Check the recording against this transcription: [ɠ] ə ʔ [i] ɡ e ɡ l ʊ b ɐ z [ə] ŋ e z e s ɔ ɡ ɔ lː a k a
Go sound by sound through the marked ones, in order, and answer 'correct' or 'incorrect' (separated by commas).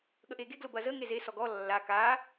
correct, incorrect, correct